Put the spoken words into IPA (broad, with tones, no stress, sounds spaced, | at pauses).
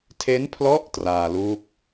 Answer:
tʰ e˦˥ n pʰ l ɔ˦˥ ʔ t r aː˧ l uː˦˥ k̚